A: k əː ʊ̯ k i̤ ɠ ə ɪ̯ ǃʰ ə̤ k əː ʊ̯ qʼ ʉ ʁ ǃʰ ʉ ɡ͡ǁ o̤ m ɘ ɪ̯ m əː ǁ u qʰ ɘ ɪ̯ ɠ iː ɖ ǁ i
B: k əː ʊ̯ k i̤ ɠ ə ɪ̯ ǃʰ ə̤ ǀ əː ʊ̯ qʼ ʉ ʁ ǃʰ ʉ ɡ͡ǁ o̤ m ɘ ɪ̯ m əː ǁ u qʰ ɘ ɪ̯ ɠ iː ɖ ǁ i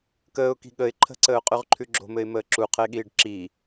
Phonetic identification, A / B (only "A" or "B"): B